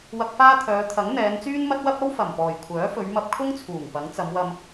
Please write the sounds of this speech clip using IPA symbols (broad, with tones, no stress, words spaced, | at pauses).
wɐ˧k̚faː˥t̪ʰœː˨˧ t̪ʰɐ˨˥ŋ n̪ɛː˨˧nt͡syː˥nmɐ˥t̚wɐ˥p̚ ɐ˥wfɐ˨˩mpɔː˨˩j kʷʰœː˨˥fɵ˨˧ɥmɐ˧p̚ kʰʊ˥ŋt͡sʰuː˨˩ŋ pɐ˨˥ŋt͡sɐ˨˧mwɐ˧m